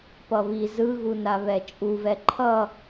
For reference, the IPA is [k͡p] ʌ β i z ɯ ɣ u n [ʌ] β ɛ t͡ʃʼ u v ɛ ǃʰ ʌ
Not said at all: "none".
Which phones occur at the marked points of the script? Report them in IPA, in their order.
p, a

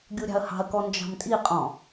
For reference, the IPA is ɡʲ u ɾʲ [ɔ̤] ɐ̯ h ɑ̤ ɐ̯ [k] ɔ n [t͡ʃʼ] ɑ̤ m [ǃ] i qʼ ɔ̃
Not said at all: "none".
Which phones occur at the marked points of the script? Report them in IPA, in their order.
ɑ̤, k, d͡ʒ, tʼ

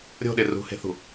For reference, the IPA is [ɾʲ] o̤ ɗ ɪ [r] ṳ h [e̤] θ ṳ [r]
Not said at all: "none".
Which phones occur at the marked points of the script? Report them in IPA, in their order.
ɾʲ, r, e̤, none

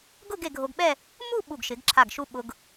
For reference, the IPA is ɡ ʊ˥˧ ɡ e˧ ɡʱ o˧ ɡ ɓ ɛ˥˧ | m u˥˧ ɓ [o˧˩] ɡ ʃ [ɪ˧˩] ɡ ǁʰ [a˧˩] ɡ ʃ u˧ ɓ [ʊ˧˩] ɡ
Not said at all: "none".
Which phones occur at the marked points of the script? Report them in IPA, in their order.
u˧˩, ɪ˩˧, a˧˩, ʊ˧

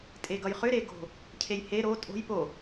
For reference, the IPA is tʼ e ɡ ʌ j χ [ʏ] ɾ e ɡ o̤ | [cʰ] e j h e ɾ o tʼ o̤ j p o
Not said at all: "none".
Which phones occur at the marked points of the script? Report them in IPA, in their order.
ʏ, cʰ

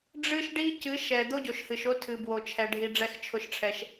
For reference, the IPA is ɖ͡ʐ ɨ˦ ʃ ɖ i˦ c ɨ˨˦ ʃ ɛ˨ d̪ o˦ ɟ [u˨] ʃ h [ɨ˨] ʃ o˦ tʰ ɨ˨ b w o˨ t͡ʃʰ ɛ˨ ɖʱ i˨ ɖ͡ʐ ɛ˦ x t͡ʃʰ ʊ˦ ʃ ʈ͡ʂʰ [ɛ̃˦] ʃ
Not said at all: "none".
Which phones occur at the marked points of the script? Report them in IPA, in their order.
o˨, ɨ˨, ɛ˦

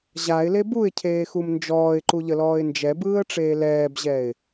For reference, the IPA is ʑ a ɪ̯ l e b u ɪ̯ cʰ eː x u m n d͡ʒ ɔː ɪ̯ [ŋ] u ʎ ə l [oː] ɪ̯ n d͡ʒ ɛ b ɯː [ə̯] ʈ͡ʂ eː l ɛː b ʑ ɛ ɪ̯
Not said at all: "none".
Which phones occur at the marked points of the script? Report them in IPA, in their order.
ǃ, ɔː, ə̯

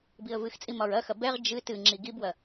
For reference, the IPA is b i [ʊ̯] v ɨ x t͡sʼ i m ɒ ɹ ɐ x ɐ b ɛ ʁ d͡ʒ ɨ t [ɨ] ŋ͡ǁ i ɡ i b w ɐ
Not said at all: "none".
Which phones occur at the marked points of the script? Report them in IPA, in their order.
ə̯, ɨ

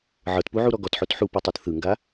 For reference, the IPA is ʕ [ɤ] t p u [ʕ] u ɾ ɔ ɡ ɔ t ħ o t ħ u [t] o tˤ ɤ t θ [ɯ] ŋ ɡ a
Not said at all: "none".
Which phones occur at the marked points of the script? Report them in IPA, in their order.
ɤ, ʕ, p, ɯ

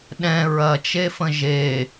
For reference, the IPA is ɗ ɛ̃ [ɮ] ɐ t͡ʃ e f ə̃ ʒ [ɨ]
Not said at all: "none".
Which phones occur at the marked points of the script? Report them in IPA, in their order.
ɹ, e

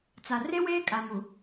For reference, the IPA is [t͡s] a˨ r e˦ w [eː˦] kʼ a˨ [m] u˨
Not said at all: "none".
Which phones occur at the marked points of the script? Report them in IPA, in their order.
t͡s, eː˦, m

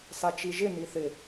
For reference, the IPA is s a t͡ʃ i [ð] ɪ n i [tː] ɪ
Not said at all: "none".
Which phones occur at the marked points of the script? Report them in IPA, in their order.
ʒ, θ

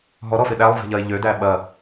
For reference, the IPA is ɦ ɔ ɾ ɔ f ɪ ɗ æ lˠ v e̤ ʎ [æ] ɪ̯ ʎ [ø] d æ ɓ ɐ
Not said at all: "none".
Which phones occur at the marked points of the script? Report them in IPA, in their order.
ɐ, ø

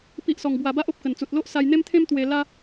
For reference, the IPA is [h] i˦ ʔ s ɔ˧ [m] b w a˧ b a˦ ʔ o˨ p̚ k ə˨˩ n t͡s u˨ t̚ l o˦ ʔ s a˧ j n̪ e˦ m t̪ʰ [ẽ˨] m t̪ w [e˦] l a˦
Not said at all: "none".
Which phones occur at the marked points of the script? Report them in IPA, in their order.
p, ŋ, ẽ˦, e˧

